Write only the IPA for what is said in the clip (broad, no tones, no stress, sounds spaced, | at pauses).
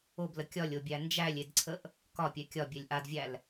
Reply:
o b l ə kʲ ɒ lʲ o bʲ æ n d͡ʒ æ lʲ e d ǀʰ ə ʔ | k ɒ pʲ ɛ kʲ ɒ bʲ ɛ lʲ ʔ a d vʲ æ l